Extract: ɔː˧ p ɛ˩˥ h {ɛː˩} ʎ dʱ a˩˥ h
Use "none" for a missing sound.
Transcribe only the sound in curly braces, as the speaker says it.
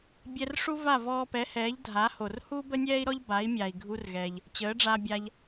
ɛː˩˥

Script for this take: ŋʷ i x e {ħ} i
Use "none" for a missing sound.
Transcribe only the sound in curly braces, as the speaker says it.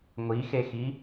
x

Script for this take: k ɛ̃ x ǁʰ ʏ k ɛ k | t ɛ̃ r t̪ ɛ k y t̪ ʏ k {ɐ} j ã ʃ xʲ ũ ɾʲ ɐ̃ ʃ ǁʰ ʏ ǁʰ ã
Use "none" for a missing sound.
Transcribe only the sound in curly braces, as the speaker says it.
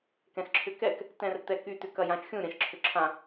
ɐ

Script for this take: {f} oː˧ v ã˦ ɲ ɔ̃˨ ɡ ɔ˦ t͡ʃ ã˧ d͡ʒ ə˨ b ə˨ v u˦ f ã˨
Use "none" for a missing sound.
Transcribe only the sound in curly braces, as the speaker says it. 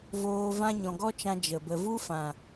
v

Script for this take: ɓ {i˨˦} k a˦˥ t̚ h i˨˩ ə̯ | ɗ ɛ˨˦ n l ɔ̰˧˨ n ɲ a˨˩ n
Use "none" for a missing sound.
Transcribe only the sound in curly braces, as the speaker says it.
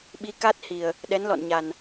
i˨˦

